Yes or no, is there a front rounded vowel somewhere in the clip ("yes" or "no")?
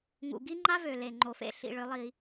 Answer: yes